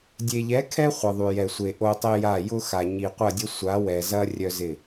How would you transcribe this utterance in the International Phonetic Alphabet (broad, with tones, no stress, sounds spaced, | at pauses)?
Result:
dʲ e˨ ʎ ɛ˨˦ kʰ ɛ˦ χʷ ə˨ ðˤ y˨ j ɛ˨ sʷ e˨ ʔ o˦ tˤ e˦ j a˦˨ j ʊ˦ x a˨ ɲ i˨ qʷ ɐ˦˨ dʲ ə˦ sʷ a˨˦ w ɛ˨ z ɐ˦ rʲ œ˦ z ɪ˦˨